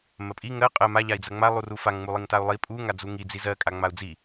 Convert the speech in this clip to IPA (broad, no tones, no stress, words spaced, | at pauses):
mɜpʼi ŋɜ qʼɜ ma ʎai̯d͡zɜŋ͡ma lˠurufaŋ ŋ͡mulˠiŋtau̯lˠi pʼu ŋad͡zuŋi d͡zizɜ kʼaŋ͡mau̯d͡zi